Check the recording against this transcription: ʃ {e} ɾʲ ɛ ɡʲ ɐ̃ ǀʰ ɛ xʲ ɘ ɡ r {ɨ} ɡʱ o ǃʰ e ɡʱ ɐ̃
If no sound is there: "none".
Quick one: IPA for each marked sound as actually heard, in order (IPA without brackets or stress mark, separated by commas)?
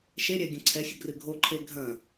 e, ɨ